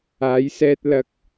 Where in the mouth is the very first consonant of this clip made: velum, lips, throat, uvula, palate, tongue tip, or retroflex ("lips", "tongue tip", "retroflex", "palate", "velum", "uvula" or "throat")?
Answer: palate